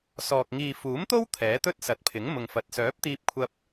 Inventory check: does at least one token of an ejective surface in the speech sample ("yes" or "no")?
no